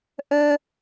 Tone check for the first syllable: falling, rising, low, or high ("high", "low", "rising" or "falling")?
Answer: high